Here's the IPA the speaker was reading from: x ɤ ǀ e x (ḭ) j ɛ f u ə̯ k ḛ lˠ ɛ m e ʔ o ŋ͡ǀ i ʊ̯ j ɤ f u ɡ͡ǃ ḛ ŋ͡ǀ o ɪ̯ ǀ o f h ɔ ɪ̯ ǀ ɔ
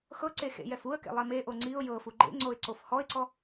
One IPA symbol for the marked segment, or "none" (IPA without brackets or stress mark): ḛ